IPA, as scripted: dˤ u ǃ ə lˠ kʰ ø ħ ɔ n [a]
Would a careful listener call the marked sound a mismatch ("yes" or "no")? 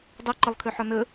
yes